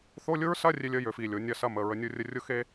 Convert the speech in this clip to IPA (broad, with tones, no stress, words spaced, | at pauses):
θo˧˥˧lʲʊ˥ɹsɐ˧˥˧ rʲe˥lʲə˥jø˨˦f i˥˧lʲo˨˦nʲɐ˥˧sɐ˥˧m ə˧˥˧ɹə˥nʲʊ˥rʲə˥ rʲʊ˥xe˥